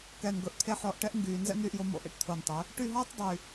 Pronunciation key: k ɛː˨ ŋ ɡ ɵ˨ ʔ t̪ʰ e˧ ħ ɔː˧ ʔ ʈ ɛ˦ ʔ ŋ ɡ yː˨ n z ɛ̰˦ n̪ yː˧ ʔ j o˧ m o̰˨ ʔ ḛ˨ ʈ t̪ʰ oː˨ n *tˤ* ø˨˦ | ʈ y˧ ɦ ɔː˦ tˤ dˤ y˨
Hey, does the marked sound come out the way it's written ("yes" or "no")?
yes